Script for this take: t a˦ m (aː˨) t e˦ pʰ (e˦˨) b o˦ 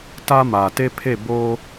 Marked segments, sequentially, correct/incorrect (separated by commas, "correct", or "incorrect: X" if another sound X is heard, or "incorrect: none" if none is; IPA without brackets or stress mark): correct, correct